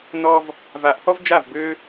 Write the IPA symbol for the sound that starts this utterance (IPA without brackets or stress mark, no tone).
n